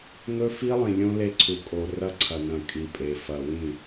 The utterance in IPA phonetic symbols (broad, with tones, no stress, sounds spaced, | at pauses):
ŋ ɵ˦ f i˦ lˠ ĩ˨ lʲ õ˦ l e˦ ǀʰ u˨ kʼ o˨ r ɐ˦ ǀʰ ɐ˨ n ɐ̃˨ kʼ i˨ pʼ e˨ f ɐ˨ w ĩ˦˨